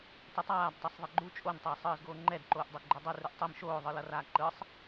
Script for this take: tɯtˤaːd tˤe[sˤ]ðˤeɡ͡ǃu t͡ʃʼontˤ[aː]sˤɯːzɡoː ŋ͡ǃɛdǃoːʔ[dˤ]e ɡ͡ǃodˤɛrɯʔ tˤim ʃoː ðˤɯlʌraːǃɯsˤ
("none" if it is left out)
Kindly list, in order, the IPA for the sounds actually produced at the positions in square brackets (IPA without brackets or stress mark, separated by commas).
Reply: sˤ, ʌː, dˤ